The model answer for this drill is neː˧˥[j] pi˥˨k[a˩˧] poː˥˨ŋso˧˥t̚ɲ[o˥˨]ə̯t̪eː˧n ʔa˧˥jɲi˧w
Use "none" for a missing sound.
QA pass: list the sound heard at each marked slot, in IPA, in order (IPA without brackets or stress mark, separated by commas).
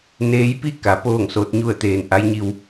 j, a˩˧, u˥˨